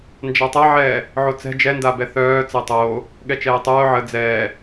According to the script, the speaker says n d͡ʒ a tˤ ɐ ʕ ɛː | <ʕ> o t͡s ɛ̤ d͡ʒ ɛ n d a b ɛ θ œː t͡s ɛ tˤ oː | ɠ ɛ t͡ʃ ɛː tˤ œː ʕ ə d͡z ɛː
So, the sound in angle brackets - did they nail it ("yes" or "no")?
yes